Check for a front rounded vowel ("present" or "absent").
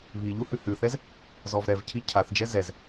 absent